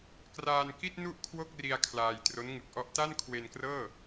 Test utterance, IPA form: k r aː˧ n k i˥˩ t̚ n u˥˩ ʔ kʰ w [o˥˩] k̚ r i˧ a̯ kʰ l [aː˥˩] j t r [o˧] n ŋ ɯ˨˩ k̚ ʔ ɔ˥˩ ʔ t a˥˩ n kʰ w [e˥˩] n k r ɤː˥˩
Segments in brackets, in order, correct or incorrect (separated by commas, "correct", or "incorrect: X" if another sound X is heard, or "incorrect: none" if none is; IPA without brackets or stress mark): correct, incorrect: aː˧, incorrect: o˦˥, incorrect: e˧